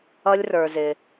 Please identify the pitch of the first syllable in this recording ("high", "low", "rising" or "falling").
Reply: high